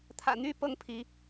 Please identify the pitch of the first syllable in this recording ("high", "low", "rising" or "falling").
low